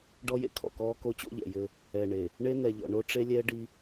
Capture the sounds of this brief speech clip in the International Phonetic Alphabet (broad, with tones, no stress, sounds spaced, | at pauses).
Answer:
ɖ ɔ˦ j ḛ˦ kʰ ɔ̰˨ k ɔː˦ k o˦ t͡ɕ o̰˦ ʎ ɛ̰˨ j ɘ˦ | ɛ˨ ɳ e˨ | ɳ e˦ n ɛ˨ ʎ ɔ̰˨ ɳ o˦ ʈ͡ʂ e˦ lʲ ɛ˦ ɖ i˦